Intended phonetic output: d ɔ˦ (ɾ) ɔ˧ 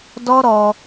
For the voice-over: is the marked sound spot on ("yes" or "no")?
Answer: yes